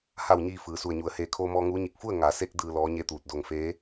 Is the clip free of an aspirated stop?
no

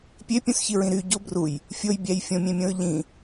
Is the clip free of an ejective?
yes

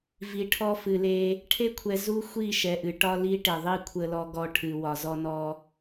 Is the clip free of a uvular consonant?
yes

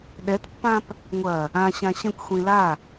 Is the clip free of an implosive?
no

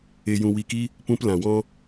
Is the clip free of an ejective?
yes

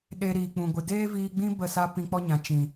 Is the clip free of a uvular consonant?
yes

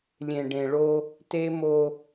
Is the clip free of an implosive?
yes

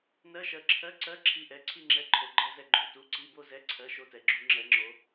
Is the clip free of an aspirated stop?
no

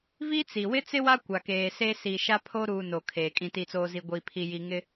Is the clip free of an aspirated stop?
no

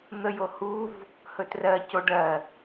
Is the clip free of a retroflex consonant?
no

